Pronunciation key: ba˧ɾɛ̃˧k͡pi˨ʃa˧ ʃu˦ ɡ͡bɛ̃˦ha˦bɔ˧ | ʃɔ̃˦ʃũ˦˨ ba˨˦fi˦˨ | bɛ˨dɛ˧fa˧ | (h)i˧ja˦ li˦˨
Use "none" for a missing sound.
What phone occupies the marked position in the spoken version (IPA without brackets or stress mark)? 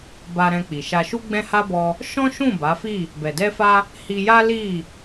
h